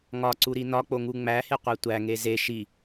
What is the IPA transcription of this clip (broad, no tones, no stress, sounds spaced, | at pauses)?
ŋ ɒ ǀ u ɾ i n ɒ k͡p o ŋ u ŋ͡m æ h e qʷ æ tʷ æ ŋ e z e ʃ i